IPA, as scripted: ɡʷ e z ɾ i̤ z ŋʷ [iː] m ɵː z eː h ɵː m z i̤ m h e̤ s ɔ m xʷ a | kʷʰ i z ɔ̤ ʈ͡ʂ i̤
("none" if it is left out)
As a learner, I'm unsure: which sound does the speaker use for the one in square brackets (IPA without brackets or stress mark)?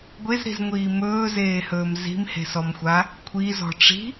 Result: iː